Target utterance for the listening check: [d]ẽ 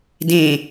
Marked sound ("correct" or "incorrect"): correct